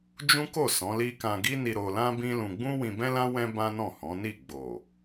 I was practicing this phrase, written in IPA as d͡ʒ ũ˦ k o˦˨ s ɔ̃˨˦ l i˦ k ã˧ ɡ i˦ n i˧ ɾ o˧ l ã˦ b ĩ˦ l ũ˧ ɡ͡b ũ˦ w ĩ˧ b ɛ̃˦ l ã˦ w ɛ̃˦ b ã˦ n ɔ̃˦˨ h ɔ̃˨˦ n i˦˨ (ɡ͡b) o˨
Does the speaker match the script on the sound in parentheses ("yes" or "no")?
yes